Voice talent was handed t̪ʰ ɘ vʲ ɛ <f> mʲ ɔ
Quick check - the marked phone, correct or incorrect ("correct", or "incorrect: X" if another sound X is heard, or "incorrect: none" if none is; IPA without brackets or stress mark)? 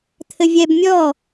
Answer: incorrect: b